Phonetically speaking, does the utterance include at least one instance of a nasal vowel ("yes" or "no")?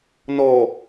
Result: no